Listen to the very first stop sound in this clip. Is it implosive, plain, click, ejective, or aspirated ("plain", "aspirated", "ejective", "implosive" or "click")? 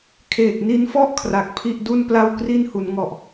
aspirated